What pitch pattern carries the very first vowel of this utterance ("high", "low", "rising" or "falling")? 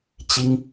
high